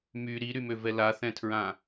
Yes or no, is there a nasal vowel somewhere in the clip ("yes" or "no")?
yes